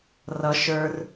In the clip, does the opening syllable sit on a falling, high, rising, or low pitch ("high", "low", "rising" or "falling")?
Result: high